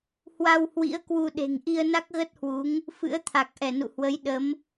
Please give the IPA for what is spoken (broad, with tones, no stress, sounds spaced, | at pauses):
h w a˧ w h w ḭ˧˥ ə̯ k w u˧ ɗ e̤˨˩ ŋ ʔ i˧ ə̯ n a˦˥ k̚ ɣ ə˦˥ t̚ h w u˨˦ ŋ | f ɨ̰˧˥ ə̯ t̪ʰ a˨˩ k̚ ʔ ɛ˧˩ n ṵ˧˨ h w ə˨˦ j ɗ ə˨˦ m